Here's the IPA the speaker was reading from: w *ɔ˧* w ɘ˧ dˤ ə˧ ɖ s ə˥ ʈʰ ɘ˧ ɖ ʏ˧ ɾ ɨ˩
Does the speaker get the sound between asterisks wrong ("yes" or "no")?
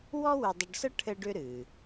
yes